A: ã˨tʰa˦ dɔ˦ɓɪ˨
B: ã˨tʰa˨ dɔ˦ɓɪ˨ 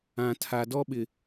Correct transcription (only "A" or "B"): B